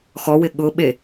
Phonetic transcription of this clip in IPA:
x ɔ w ɪ ɠ ʊ ɓ e

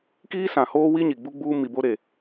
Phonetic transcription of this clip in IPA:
k iː˦ s ã˨ h oː˦ w i˦ ɲ i˨ ɡ͡b u˦ ɡ͡b uː˦ m i˨ b o˦ ɾ e˨

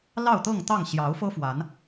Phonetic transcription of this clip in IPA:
l ɑ˥˨ ʊ̯ t̪ ɤ˥˨ ŋ t̪ ɑ˥˨ ŋ ɕ j ɑ˨˦ ʊ̯ f ɤ˦ f w a˨˦ n

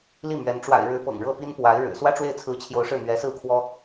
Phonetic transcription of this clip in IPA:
l i˥˩ m ɥ ɛ˧˥ n ʈ͡ʂ w a̰˨˩ ɪ̯ ɻ ɻ̩˧˥ p ɤ̰˨˩ ŋ ɻ ɤ˥˩ p i˥ n p w a˧˥ ɪ̯ ɻ ɻ̩˨˩ s w ä˥ ʈ͡ʂ w e˥˩ ɪ̯ t͡sʰ ɹ̩˧˥ t͡ɕʰ j o˧˥ ʊ̯ ʂ ɻ̩˥˩ n̪ ɥ ɛ˧˥ s ɹ̩˥˩ kʰ w ɔ˥

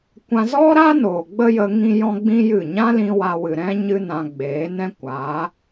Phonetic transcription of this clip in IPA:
kʷ ã˧ z ɔ˦ ɾ a˦ n oː˨ ɡ͡b ə˦ j ə˧ ŋ ĩ˦ j ɔ̃˦ ɡ͡b ĩ˦ j ɨ˦˨ ɲ ã˦ l ĩ˧ w a˧ w ɨ˨ ɾ ɛ̃˦ ɲ ɨ˦ n ã˧ ɡ͡b eː˨˦ n ɛ̃˦ kʷ aː˨˦

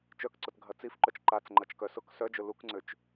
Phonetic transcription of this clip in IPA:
t͡ʃ œ k ǀ ʊ t ɡʱ ɐ t͡s i f ǃ œ t͡ʃ ǃ a t͡s ŋ͡ǃ ɐ t͡ʃ k œ s ʊ k s œ d͡ʒ ʊ l u k ŋ͡ǀ ø t͡ʃ

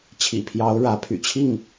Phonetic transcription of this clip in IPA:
t͡ɕʰ ḭ˨˩ pʰ j ɑ˧˥ ʊ̯ ɻ ä˧˥ pʰ y̰˨˩ t͡ɕʰ i˥˩ ŋ

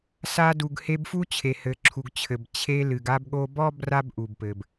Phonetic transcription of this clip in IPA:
s a˧ d u˩ ɡ h e˧ b f u˥ t͡ɕʰ e˩ h ɘ˩ ǁʰ u˩ ɡ t͡ɕʰ ɘ˩ b t͡ɕʰ e˧ l ɨ˩ ɡ a˧ b ɠ o˧ b ɔ˥ b r a˥ b ʔ u˩ b p ɘ˩ b

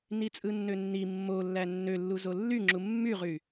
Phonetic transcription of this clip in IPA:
n i t͡sʼ ɯ nː ø nː i mː o lː æ nː ø lː u z o lː y ŋ͡ǁ u mː y ʁ y

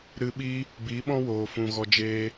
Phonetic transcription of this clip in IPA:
ɾ ɨ˧ ɓ i˦ | b i˨˦ ɓ ɔ̃˦ w oː˨ f ũ˨ ɣ ɔ˧ d͡ʒ eː˦

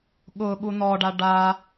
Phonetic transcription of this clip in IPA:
ɠ ʊ ɠ u n ɔ ɖ a ɖ a

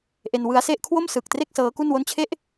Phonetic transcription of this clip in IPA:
ʔ e˧ n w ɯ˦˥ a̯ s e˥˩ ʔ kʰ w o˥˩ m s ɯ˨˩ k̚ t r e˥˩ k̚ s ɤː˦˥ k u˥˩ n w o˥˩ n t͡ɕʰ e˥˩ ʔ

